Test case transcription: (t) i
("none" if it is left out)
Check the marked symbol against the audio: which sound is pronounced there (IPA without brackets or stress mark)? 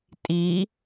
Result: tʼ